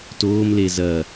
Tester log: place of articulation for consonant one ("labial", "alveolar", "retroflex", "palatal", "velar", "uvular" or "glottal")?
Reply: alveolar